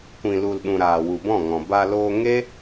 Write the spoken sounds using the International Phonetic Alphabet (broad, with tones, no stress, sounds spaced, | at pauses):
kʷ ĩ˨ l u˨ l ɗ ũ˨ ɾ aː˨ w u˨ b ɔ̃˦˨ ŋ ɔ̃˨ b a˧ l oː˧ ŋ e˦